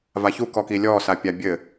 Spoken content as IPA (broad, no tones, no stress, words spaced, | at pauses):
vaçukɔki lʲɔ sapʲabʲɘ